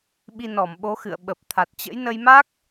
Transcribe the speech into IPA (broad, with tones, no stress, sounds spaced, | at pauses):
ɓ i˧ n ɔ˧˩ m ɓ o˨˦ x ɨ̰˧˨ ə̯ ɓ ə˨˩ p̚ t̪ʰ a˨˩ t̚ t͡ɕ ə̰˧˥ j n ə˧ j m a˦˥ k̚